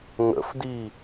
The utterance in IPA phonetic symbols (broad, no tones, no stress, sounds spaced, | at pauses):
ŋ ə̰ f d i